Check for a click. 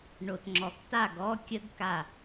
present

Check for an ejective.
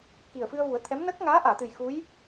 absent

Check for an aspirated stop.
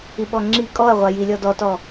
absent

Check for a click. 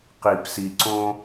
present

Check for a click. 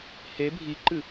present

